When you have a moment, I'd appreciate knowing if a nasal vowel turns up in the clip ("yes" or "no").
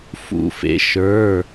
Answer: no